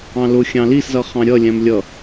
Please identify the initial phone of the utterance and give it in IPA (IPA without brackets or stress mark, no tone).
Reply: ɑ̃